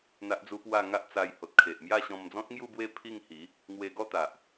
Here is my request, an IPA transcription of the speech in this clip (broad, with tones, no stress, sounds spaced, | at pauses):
n̪ a˦ ʔ d͡z u˦ p w a˥˧ ŋ a˦ ʔ t͡s a˧ j h o˨ t̚ kʰ e˨ ʔ m j a˥˧ ɕ ɔ̃˧ m d͡z ɔ̃˦ t̚ ŋ j u˥˧ b w e˥˧ pʰ i˥˧ ŋ h i˨˦ | ŋ w e˧ ɡ ɔ˥˧ t̪ a˨ ʔ